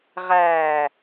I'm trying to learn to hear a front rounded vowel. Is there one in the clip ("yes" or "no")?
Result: no